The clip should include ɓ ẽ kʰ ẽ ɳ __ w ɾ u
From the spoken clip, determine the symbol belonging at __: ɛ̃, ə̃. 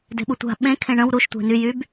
ə̃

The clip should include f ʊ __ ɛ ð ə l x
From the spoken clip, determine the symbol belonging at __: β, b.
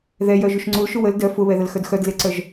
β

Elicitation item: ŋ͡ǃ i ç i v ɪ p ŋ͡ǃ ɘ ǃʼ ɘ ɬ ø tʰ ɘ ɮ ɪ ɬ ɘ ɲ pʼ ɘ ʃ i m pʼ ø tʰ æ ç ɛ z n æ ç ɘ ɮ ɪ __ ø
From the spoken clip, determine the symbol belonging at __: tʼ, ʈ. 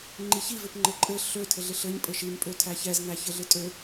tʼ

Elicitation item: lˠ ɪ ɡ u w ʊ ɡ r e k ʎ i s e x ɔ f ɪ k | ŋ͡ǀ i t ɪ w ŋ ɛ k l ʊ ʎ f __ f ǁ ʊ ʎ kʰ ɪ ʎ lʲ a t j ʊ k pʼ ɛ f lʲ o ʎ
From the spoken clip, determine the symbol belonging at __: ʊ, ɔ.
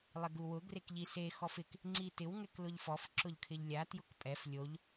ɔ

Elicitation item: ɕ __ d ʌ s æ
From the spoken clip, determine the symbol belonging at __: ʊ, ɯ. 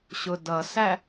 ʊ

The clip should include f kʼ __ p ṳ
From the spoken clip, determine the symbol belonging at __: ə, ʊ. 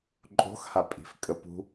ə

